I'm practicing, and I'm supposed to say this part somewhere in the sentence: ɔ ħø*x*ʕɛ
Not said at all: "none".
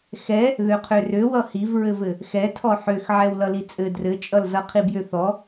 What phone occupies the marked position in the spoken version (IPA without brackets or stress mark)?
x